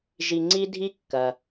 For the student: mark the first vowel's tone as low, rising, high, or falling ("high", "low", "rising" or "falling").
low